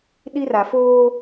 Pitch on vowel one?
high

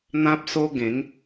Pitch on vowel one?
high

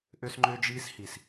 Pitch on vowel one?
high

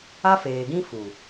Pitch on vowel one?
high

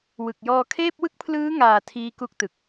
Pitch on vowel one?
low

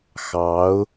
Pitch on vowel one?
rising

